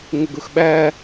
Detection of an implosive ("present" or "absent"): present